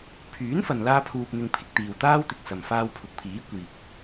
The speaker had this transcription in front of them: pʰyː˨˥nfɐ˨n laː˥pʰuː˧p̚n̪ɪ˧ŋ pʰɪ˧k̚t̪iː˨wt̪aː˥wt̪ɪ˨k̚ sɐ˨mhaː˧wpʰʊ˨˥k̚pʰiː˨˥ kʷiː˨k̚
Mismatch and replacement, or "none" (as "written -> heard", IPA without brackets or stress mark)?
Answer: h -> f